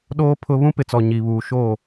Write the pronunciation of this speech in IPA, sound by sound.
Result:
ɗ oː˦ pʰ ʊ˦ β ũ˦ p ɪ˨ t͡s ɔ˨ ɲ i˨ β uː˨ ʃ o˦˨

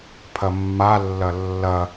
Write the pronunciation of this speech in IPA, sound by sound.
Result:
pʰ ɐ mː a lː ɐ lː ɐ

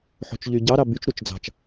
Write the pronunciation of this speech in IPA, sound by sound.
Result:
ħ o̤ t͡ʃ ʎ y ɟ ɑ ɾ ɑ b y t͡ʃ ɾ u t͡ʃ d͡z ɑ̤ t͡ʃ

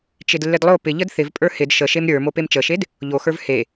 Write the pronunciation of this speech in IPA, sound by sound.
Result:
t͡ʃ ɪ d lː ɪ d lˠ o p ɪ ʎ ə d θ ɪ v pʼ ə˞ h ɪ d ʃ ə ʃ e m ɾʲ ə˞ m o p e m t͡ʃ ə ʃ e d | ʎ o x ə˞ v h e

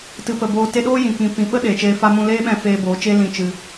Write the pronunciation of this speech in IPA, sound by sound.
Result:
t ɨ˨ p ə˨ b oː˨ t e˧ ɗ oː˦ j ĩ˨ k ĩ˨ p ĩ˨ ɓ ə˦ ɗ eː˨ t͡ʃ eː˧ f a˦ m ũ˧ l eː˦ ɓ ɛ̃˧ f eː˧ b oː˨˦ t͡ʃ e˦ l ĩ˧ t͡ʃ ɨ˧

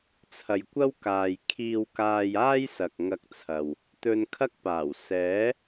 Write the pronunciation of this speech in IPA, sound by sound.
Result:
t͡sʰ ɐ˨ j kʷ ɐ˥ w k aː˨ j kʰ iː˧ w k aː˧ j aː˥ j s ɐ˨ k̚ ŋ ɐ˧ k̚ t͡sʰ ɐ˨ w | t̪ ɵ˧ n kʰ ɐ˥ k̚ p aː˨˩ w s ɛː˨˥

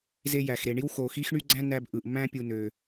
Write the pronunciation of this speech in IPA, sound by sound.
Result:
z e˥ j æ˧ x ɾ e˧ ɳ i˥ w x o˧ x i˥ x ɳ y˥ ɡ͡ǀ æ̃˥ n æ˥ b ʔ ɯ˧ ʔ m æ̃˥ pʲ u˧ n ø˧

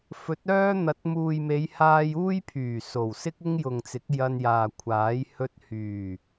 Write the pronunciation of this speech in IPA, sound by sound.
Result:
f ɵ˨˥ t̚ œː˥ n̪ ɐ˨˥ t̚ m uː˨ j m e˨˧ j h aː˧ j uː˥ j pʰ yː˨˩ s o˨˩ w s ɪ˥ k̚ ɪ˥ ŋ j ʊ˨ ŋ t͡s ɪ˨˥ k̚ j ɐ˧ n j aː˨ kʷʰ aː˨˥ j h ɵ˧ t̚ h yː˨˩

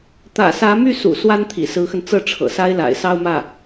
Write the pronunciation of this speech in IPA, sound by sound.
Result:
t̪ ä̰˨˩ s ä˧˥ m y˥˩ s ṵ˨˩ s w a˥ n t̪ʰ ḭ˨˩ s ɹ̩˧˥ x ə˧ n t͡s ɤ˥˩ ʈ͡ʂʰ ɤ̰˨˩ s a˥ ɪ̯ l a̰˨˩ ɪ̯ s ɑ˥˧ ʊ̯ m ä˥˩

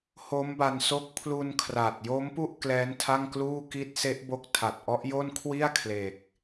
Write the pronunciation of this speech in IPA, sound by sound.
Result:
h o˦˥ m b a˧ n s o˦˥ k̚ pʰ l u˧ n kʰ r a˨˩ t̚ j o˦˥ m p u˥˩ ʔ k l ɛː˦˥ n tʰ a˥˩ ŋ k l uː˥˩ k i˦˥ t̚ s e˦˥ ʔ b o˦˥ k̚ tʰ a˨˩ t̚ ʔ ɔ˦˥ ʔ j o˥˩ n kʰ w i˥˩ a̯ kʰ l e˨˩ k̚

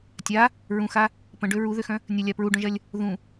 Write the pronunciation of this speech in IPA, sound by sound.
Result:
tʲ a | ɹ ũ x a | p ə̃ ɖ ø ɹ u ð ø x œ̃ | nʲ ə lʲ a p ɹ u ɖ œ̃ ʒ ɐ lʲ | ð ũ

